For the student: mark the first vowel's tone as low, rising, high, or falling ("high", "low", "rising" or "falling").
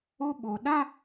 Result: high